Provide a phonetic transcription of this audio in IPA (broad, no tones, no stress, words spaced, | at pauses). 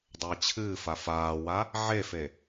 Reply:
dˤəːt͡ɕʰɨːfa faːwa | ʕefe